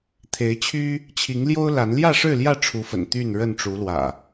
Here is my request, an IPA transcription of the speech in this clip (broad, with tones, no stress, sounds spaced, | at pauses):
t̪ʰ e˨˦ ɪ̯ t͡ɕʰ y˦ | t͡ɕʰ i˨˦ ŋ l j o˦ ʊ̯ l a˨˦ n l j ä˥˨ ʂ ɻ̩˥˨ l j ä˥˨ ʈ͡ʂʰ u˨˦ f ə̰˨˩ n t̪ y˥˨ n ɻ ə˥˨ n ʈ͡ʂ u˨˦ l w ä̰˨˩